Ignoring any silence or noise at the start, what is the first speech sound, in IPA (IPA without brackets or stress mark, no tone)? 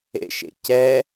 ḛ